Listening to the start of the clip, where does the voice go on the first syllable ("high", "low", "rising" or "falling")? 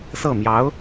falling